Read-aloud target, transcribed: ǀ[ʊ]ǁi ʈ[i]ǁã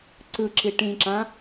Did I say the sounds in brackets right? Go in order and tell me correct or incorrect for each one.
incorrect: ɯ, incorrect: ĩ

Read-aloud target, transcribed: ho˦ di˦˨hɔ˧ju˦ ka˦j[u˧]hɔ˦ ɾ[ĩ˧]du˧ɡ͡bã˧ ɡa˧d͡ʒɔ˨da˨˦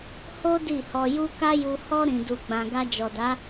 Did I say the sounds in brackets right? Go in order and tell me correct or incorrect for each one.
correct, correct

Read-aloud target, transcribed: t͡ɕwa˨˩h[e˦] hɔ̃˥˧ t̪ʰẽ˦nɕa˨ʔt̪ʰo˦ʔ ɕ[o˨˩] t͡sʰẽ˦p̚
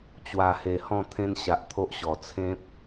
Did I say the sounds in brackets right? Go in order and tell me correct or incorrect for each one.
incorrect: e˨˩, incorrect: ɔ˨˩

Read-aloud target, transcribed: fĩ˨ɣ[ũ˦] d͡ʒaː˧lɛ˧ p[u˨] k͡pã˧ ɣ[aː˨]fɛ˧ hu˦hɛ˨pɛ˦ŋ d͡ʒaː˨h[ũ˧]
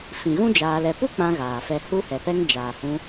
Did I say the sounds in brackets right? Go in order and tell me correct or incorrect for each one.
correct, incorrect: u˦, correct, correct

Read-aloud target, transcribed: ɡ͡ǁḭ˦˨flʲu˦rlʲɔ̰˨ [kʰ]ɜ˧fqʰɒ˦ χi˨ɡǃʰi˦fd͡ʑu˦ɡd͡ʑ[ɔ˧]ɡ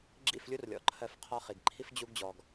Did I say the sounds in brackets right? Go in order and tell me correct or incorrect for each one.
incorrect: ǃʰ, correct

